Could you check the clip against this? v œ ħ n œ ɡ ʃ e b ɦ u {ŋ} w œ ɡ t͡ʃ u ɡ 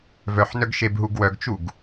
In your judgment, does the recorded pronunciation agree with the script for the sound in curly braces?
no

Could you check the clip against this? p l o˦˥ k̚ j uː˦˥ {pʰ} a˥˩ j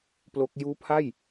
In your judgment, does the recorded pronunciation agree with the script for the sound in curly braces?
yes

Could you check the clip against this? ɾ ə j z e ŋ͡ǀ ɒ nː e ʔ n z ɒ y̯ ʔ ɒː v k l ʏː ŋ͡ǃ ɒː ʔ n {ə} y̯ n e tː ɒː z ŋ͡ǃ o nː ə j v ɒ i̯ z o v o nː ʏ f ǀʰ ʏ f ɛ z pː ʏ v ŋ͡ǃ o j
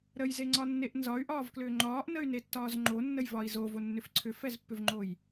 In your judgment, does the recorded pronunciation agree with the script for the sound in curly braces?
yes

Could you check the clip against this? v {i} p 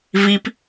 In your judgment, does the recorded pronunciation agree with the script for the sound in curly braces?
yes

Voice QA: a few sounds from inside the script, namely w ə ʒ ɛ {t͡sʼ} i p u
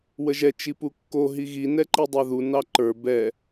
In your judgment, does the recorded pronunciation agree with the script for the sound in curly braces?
no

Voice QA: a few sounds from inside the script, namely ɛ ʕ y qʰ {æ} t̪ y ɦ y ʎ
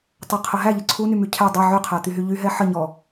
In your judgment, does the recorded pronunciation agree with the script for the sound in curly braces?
yes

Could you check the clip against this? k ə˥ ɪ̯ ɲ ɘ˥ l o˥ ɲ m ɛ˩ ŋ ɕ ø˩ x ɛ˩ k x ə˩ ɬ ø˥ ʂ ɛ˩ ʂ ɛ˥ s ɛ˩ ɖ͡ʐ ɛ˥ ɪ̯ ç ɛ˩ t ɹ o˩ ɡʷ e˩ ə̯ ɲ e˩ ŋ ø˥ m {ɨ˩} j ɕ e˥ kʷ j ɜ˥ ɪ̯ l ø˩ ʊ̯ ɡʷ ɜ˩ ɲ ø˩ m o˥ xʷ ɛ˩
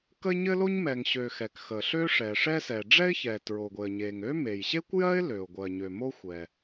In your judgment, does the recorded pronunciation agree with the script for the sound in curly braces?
no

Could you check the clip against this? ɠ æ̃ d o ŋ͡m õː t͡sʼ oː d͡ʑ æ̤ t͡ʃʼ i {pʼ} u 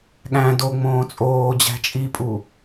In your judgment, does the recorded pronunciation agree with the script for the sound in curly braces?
yes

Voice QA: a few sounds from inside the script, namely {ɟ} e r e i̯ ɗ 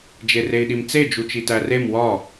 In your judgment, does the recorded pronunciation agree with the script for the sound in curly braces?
no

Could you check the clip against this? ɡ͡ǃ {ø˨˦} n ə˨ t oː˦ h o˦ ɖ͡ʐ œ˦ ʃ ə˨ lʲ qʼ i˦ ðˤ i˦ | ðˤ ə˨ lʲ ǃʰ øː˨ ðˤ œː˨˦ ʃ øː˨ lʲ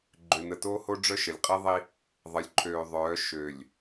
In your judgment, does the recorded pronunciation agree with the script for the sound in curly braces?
no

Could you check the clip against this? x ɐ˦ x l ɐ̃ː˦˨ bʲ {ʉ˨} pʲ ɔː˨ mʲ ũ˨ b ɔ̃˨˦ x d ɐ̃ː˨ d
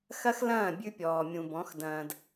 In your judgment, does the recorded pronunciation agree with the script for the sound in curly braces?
no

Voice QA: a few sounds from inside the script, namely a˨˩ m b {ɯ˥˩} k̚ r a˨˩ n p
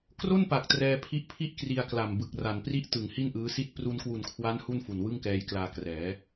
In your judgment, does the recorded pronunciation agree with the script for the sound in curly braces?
no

